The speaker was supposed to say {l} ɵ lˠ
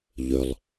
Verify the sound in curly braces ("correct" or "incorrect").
incorrect